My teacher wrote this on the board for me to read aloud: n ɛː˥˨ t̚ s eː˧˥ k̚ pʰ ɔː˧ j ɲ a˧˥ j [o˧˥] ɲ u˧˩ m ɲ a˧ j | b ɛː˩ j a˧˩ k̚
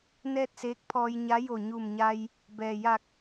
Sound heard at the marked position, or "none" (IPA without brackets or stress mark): o˧˩